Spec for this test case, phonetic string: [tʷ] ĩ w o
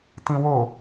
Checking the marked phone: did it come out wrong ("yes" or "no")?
yes